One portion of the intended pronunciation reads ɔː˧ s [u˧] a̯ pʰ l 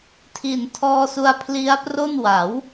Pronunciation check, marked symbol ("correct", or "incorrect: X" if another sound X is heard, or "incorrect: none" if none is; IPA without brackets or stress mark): correct